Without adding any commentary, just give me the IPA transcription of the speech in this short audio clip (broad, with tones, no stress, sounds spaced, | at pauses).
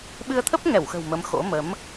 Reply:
ɓ ɨ˧ ə̯ t̪ʰ ə˦˥ p̚ ŋ ɛ˧˩ w x ə̤˨˩ w m ə˨˦ m x o̰˧˥ m ə˨˦ m